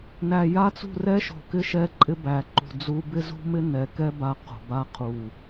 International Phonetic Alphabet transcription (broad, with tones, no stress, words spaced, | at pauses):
næ˨ja˦t͡sṳ˦˨ rɛ˦ʃo̤˨kɪ˦ ʃɛ˦ǃʼɪ˦bæ˨ ǃṳ˨d͡zu˦ bɪ˦zṳ˦mɪ˦ nɛ˨kɛ˦ ba˨˦ qo̤˨ ba˦˨qʰu˨